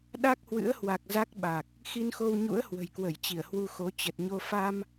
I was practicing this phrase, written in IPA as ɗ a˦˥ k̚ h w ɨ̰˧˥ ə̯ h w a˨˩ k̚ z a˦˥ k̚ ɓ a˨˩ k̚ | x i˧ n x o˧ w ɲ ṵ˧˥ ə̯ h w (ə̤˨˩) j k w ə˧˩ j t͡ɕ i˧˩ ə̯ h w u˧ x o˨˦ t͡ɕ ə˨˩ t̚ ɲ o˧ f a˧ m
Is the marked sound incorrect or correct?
correct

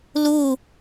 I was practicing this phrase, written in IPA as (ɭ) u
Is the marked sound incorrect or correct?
incorrect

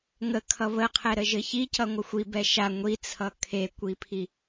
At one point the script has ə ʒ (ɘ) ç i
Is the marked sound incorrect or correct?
correct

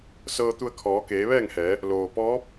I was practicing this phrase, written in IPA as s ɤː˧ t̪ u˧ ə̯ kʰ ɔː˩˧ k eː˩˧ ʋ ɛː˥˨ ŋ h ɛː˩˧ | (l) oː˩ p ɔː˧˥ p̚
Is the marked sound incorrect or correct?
correct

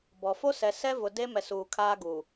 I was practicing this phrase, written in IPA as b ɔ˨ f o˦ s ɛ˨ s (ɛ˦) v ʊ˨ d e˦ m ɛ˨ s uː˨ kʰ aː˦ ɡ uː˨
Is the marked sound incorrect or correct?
correct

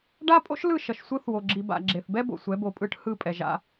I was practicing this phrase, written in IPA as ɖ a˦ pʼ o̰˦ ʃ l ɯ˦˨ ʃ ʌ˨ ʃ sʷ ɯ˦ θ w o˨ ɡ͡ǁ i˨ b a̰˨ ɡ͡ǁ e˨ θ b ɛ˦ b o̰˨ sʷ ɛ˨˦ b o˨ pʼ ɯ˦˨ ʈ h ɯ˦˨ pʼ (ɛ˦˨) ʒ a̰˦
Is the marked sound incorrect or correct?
incorrect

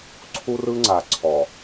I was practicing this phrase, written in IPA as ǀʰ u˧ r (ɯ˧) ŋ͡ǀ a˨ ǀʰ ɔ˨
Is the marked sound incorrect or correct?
correct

